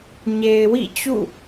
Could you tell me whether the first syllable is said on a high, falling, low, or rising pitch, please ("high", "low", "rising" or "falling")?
low